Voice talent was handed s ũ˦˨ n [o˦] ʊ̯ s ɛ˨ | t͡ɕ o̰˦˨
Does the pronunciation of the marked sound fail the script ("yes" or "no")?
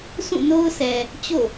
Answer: no